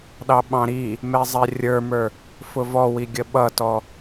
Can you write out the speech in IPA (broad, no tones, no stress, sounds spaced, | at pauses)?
ɗ ɑ ɓ ɑ̃ ɾ i | m ɛ zˤ ɛ rʲ ə˞ m ə˞ | f ʊ v ɔ w i ɡʲ ə ɓ ʌ t ɔ